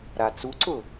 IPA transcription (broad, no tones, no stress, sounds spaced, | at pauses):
ɾ a t͡s u ǀ ʊ